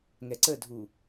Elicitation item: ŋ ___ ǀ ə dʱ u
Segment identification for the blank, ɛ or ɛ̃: ɛ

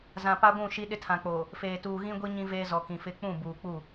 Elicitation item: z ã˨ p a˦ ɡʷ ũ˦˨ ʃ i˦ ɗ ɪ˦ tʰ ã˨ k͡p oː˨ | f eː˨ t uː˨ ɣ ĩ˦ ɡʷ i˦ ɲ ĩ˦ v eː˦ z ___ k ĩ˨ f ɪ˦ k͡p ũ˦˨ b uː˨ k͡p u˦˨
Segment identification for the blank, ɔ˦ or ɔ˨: ɔ˨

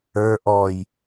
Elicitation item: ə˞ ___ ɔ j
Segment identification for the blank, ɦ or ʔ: ʔ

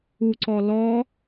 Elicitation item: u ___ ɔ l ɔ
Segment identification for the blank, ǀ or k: ǀ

